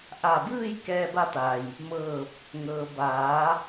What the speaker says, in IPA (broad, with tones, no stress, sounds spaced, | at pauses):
ʔ a˧˩ b ɯː˥˨ j k ɛː˧ b a˧ t̪ a˩ j | m ɤː˧˩ p̚ | ŋ ɤː˩ b aː˩˧